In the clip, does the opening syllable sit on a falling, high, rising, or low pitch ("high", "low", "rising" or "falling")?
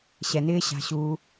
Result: low